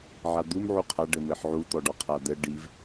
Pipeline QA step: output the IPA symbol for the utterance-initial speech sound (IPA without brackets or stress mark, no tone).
ʕ